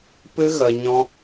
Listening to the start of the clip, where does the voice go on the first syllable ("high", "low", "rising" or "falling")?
high